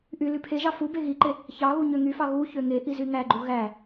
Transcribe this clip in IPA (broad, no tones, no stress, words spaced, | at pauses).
ʔy lypʰeʒɑ fu beɣiǃe | çɑɣu ɲøŋyfɑ ɣu çøŋeʔiz yŋæɡ͡ǃu ɣæ